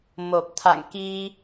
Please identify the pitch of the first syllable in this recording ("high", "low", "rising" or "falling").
low